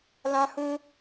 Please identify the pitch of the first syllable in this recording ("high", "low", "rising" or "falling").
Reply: high